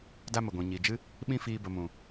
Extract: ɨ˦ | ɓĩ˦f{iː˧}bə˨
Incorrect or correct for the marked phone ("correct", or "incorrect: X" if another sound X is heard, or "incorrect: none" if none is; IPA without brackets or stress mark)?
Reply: correct